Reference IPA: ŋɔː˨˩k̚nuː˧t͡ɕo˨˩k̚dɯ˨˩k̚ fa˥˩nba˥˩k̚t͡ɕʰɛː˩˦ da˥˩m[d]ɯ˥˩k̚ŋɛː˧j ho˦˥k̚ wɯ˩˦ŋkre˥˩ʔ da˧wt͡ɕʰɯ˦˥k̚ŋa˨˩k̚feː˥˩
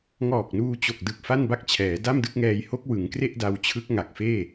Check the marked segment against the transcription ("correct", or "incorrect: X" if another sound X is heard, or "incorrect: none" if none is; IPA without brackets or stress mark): correct